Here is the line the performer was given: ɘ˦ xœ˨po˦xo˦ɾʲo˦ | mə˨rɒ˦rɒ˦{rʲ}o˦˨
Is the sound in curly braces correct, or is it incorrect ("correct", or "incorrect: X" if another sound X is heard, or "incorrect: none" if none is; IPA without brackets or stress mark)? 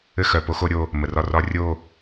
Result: correct